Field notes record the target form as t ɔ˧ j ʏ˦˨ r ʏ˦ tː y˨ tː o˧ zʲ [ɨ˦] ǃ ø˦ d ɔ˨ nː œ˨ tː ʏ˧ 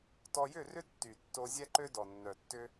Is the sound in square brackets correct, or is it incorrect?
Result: incorrect: ɛ˦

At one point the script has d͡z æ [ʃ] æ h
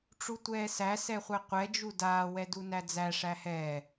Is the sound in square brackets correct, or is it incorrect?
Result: incorrect: ʂ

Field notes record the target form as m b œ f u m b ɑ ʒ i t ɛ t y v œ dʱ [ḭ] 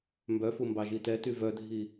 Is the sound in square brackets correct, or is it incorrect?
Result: incorrect: i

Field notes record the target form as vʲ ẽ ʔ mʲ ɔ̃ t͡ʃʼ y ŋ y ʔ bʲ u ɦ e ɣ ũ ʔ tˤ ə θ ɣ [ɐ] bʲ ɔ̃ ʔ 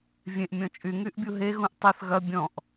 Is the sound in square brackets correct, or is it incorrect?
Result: correct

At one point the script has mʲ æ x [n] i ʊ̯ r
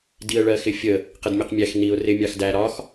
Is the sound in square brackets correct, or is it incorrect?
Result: correct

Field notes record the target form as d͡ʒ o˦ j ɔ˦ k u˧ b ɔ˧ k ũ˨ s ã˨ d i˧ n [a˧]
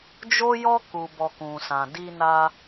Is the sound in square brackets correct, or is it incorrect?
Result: correct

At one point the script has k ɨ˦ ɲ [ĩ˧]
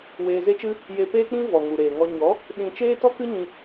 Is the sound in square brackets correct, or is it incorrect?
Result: correct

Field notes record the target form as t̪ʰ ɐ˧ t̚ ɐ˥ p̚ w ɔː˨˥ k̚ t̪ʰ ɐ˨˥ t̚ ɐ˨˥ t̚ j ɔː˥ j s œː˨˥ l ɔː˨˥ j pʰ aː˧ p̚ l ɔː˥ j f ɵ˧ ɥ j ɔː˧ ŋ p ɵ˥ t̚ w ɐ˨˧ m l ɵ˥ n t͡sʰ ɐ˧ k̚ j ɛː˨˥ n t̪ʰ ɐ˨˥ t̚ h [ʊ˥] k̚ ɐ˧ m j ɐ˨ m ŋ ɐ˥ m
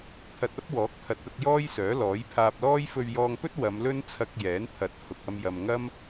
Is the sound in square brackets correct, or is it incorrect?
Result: incorrect: ʊ˨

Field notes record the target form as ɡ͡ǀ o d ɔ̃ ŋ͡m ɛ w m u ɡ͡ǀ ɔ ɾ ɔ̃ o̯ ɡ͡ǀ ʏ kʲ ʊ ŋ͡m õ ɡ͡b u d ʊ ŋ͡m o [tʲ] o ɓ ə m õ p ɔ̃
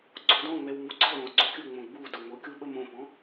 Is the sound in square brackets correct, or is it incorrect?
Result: incorrect: kʲ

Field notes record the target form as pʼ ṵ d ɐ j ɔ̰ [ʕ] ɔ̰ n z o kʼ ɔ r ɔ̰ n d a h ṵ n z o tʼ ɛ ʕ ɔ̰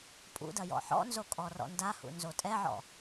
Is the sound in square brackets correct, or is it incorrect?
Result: incorrect: ħ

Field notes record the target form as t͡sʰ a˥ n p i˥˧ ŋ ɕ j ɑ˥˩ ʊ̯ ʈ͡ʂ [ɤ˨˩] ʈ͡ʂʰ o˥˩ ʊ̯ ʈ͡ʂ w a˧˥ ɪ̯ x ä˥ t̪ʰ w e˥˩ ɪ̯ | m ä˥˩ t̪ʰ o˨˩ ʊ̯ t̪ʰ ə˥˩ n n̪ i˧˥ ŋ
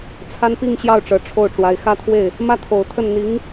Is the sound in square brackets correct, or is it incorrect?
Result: correct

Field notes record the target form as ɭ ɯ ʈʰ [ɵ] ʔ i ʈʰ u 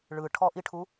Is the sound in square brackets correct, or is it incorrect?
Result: incorrect: ɔ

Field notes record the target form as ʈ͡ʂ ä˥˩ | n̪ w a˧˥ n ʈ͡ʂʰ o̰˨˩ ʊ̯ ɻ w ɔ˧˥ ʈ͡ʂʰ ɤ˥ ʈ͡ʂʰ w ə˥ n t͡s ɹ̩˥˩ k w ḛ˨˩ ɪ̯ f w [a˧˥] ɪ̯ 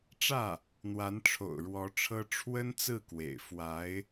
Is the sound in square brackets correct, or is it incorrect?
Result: correct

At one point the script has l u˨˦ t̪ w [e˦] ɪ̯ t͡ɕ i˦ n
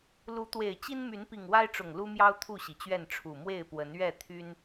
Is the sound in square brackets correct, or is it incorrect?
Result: incorrect: e˨˩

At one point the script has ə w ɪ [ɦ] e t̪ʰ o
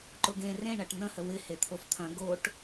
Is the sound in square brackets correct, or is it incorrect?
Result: incorrect: h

